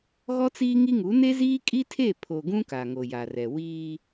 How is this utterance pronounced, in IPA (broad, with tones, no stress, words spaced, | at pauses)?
ɣɔ˦t͡siː˦ŋi˦ŋu˨˦ ne˦ziː˦kʼi˦tʰe˦˨ pʰo˨ ɡũ˦ ka˨ŋo˨ja˨rɛ˨ wiː˦